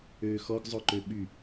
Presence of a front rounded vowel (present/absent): present